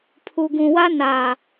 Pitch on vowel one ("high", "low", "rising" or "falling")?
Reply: low